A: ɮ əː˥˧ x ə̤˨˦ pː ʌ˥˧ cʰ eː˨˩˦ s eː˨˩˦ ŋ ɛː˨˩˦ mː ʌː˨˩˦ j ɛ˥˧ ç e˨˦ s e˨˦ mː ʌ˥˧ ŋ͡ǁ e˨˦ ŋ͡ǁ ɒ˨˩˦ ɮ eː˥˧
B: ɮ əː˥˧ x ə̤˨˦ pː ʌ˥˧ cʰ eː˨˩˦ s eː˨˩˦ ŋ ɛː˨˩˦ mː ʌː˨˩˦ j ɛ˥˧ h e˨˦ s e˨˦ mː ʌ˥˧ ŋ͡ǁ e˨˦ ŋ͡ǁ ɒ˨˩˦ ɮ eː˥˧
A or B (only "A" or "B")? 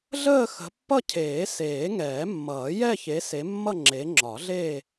A